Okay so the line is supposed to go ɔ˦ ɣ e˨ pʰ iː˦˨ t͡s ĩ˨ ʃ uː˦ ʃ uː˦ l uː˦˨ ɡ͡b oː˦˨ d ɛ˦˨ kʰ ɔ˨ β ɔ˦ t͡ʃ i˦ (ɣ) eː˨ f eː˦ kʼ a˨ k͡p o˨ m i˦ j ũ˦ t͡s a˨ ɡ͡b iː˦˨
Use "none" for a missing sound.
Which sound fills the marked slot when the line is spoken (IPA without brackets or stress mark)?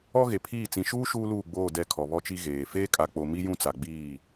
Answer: ɣ